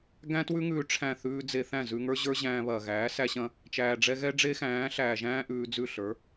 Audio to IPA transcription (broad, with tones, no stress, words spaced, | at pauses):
ɡæ̃˦twʉ˦ŋʉː˧ ʈ͡ʂʰæ̃˦˨θʉː˦ d͡ze˧θæ̃˦˨ zʉ˧ŋə˞˦ ʑə˞˦ʑæ̃ː˧βɐː˨ɣæː˨˦ sæ˦ɕɐ̃˦ | t͡ʃæː˨ɖ͡ʐɛ˧ɣɛ˦ ɖ͡ʐe˦xæ̃ː˨˦ɬæː˨ʒæ̃ː˦ ʔʉː˧d͡zʉ˦˨ ɬə˞˨˦